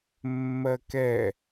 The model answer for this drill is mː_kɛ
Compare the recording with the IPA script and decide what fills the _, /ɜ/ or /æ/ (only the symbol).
ɜ